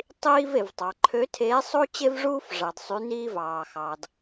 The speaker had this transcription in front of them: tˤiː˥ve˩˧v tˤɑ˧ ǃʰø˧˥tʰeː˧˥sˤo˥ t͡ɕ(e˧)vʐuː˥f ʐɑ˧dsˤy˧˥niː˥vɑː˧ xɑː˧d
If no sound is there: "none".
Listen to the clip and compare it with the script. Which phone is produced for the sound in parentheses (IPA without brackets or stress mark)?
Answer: e˥